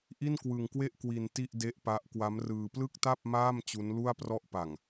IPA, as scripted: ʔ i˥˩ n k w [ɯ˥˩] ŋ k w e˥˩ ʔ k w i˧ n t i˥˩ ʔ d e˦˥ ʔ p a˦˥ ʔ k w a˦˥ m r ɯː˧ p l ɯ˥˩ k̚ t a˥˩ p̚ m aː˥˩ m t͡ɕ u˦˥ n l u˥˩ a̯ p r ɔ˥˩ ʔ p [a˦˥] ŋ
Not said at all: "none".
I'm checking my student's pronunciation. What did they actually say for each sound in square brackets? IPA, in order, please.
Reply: ɯ˧, a˨˩

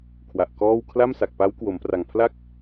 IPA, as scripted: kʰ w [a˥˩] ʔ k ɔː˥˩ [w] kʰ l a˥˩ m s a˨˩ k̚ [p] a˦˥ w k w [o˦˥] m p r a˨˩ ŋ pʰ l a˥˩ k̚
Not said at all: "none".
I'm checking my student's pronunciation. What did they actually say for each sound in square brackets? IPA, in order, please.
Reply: a˨˩, w, p, o˩˦

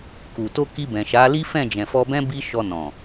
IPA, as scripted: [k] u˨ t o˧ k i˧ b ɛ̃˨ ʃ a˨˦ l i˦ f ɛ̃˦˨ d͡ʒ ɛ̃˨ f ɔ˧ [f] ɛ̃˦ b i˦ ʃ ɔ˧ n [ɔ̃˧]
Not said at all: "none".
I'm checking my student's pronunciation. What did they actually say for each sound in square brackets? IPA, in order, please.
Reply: k, b, ɔ̃˨

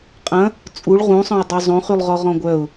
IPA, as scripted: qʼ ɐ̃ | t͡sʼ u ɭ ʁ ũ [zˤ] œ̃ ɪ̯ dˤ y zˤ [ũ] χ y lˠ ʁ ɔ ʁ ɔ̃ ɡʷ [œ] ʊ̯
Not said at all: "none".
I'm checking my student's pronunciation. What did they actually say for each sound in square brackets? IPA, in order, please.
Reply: sˤ, õ, œ

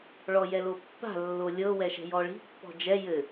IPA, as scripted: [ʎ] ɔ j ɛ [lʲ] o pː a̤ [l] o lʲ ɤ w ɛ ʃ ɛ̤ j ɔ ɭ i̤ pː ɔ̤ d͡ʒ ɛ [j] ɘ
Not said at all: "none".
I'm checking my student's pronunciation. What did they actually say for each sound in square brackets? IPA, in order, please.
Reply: ɭ, l, lː, j

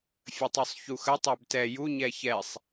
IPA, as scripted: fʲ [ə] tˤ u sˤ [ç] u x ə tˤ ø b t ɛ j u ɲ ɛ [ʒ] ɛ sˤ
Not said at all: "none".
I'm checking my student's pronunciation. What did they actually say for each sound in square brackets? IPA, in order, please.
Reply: ə, ç, ç

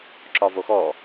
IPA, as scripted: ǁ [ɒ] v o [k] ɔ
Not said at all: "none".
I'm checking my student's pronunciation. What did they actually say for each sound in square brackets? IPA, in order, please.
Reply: ɒ, x

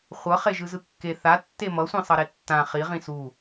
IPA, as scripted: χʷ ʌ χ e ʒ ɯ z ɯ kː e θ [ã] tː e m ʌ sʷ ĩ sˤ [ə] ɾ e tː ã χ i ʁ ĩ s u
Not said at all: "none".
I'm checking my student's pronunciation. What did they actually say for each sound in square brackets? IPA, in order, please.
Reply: a, ʌ

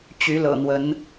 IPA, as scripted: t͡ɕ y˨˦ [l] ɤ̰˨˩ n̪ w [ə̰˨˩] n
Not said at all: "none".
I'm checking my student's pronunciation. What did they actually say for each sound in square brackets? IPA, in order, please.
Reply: l, ə˨˦

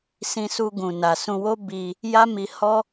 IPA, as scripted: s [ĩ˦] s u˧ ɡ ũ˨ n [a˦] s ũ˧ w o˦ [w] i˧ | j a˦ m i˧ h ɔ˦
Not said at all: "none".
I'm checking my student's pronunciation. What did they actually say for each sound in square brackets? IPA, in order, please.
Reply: ĩ˧, a˨, b

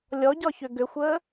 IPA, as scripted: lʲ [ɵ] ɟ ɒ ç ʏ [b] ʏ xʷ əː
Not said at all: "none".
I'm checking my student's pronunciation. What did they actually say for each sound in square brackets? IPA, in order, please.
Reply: ɔ, ɡ

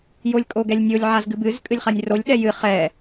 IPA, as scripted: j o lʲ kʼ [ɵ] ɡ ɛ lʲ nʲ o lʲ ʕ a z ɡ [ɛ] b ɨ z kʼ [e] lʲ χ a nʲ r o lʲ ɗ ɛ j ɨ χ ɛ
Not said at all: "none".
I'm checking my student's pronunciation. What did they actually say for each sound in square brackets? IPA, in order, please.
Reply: o, ɨ, ɨ

